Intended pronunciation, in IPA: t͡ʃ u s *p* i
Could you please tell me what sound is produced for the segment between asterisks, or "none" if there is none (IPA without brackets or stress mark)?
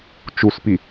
p